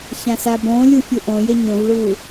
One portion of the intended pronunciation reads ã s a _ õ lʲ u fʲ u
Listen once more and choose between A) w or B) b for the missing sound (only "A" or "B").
B